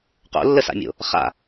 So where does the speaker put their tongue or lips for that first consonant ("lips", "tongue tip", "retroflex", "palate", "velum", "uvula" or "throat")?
uvula